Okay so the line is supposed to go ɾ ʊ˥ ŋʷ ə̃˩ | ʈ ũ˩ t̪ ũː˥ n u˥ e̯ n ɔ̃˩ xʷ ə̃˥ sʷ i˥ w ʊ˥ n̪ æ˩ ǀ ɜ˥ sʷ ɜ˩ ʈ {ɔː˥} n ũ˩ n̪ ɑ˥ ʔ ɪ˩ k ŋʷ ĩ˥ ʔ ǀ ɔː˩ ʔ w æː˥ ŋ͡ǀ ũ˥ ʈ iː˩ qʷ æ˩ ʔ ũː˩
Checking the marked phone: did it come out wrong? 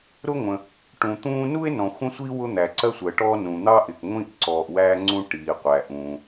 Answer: no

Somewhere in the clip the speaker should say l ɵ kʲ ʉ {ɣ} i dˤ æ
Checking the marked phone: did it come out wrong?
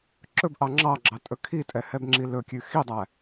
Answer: yes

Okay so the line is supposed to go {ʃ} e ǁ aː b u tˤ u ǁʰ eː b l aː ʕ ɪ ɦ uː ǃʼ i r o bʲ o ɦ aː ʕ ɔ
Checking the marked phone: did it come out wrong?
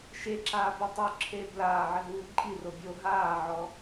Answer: no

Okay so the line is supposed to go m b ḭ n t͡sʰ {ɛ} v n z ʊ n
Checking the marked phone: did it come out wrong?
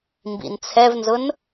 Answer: no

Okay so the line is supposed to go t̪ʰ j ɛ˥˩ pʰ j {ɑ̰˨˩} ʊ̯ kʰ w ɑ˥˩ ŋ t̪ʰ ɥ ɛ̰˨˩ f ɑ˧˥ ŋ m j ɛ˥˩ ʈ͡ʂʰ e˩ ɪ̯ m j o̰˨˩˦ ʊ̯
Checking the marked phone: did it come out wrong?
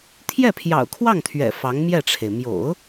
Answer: no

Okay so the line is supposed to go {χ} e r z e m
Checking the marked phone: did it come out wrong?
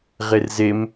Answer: yes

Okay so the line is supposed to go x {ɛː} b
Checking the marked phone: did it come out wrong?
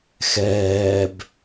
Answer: no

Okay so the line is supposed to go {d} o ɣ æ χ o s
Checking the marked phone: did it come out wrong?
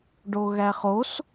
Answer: yes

